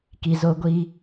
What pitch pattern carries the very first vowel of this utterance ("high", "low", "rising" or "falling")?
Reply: low